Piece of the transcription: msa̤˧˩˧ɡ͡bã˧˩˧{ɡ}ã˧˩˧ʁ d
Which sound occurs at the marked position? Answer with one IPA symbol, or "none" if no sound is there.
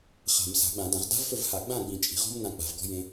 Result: d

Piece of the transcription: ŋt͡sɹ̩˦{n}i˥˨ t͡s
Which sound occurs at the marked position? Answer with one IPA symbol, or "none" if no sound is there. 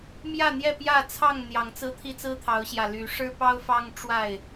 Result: t̪ʰ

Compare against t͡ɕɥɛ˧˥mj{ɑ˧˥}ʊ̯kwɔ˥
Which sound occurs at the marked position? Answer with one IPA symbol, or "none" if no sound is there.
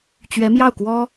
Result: ɑ˥˩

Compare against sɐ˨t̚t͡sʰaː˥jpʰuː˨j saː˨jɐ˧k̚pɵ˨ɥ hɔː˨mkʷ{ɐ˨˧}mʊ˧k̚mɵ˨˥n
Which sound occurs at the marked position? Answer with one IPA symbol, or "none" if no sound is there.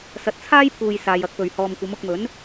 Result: ɐ˨˧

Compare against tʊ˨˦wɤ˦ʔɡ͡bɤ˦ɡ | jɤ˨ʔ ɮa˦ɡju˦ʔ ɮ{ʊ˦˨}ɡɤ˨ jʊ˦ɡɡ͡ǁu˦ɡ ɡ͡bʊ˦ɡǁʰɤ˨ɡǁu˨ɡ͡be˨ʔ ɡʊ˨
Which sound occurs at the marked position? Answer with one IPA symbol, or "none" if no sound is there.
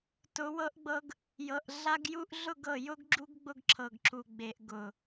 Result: ʊ˦˨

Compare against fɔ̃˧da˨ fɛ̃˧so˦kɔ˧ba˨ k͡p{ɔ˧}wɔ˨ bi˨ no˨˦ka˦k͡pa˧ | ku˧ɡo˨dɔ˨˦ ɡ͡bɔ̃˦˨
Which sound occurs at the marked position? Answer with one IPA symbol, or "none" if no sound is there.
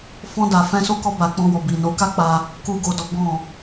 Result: ɔ̃˧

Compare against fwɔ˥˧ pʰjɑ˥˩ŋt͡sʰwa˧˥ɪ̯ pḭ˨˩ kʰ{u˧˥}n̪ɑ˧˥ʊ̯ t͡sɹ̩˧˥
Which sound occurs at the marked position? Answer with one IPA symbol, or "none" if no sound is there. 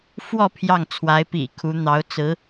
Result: u˧˥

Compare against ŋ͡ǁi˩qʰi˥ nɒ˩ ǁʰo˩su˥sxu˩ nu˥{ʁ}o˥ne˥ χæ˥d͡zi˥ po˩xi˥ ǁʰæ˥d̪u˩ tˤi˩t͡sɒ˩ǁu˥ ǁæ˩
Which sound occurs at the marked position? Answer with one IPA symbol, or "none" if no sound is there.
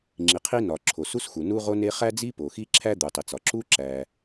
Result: ʁ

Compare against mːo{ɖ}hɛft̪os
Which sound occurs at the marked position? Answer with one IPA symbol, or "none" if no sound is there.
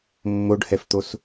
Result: ɖ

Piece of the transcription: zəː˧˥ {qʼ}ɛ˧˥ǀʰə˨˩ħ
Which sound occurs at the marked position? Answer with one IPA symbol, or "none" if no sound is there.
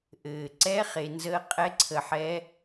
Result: qʼ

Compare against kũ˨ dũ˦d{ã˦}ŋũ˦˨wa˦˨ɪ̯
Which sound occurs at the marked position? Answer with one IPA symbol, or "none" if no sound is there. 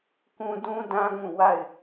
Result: ã˦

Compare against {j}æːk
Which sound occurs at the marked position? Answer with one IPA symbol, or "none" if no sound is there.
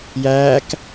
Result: j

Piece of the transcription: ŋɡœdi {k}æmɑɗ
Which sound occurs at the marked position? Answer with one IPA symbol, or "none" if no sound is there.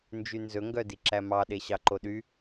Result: ǁ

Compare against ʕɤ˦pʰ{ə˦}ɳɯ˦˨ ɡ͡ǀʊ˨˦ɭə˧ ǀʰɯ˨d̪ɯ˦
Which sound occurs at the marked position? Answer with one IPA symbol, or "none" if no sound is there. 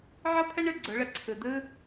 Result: ə˦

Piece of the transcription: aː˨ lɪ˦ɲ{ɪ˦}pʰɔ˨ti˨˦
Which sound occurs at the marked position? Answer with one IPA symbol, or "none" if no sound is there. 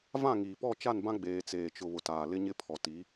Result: ɪ˦˨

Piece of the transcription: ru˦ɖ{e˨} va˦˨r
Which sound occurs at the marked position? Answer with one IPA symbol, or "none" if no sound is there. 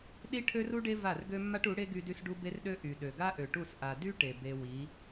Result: e˦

